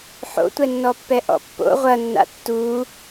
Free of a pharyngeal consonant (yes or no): no